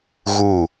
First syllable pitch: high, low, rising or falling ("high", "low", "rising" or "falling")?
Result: falling